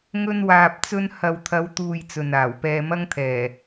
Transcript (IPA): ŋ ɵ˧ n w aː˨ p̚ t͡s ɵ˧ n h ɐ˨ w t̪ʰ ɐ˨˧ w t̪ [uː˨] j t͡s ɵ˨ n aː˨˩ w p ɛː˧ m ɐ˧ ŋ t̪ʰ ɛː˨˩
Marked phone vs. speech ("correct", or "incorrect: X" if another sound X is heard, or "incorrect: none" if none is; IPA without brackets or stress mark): correct